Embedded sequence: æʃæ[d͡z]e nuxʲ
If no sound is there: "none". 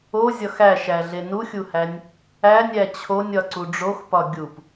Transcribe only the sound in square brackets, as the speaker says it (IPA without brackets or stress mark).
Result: ɮ